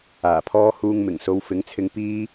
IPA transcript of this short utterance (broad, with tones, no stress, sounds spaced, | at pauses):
aː˨˩ pʰ ɔː˥ h uː˧ ŋ m ɪ˨˩ ŋ s o˨˧ w f ɪ˨˥ ŋ t͡sʰ ɪ˧ ŋ p iː˥